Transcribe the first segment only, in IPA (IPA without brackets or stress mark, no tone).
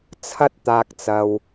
t͡sʰ